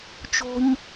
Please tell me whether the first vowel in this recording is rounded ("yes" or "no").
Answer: yes